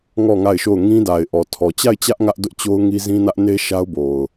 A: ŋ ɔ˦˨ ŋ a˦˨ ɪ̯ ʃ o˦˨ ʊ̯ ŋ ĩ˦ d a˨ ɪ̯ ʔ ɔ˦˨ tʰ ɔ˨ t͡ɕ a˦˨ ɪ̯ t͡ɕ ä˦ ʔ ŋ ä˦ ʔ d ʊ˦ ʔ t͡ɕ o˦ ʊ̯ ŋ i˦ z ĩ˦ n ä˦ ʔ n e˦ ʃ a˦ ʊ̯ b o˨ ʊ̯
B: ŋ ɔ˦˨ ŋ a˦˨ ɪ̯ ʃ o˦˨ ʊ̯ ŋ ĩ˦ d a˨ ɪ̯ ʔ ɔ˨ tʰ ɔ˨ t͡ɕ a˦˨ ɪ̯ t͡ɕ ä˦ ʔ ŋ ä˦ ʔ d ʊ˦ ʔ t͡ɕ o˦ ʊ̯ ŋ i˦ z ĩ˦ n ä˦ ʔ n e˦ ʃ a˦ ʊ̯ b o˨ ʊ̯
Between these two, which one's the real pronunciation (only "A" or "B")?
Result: B